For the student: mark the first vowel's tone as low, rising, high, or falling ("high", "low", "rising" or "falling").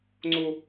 high